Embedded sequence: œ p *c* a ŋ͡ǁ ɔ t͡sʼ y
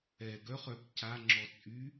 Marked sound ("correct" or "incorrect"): correct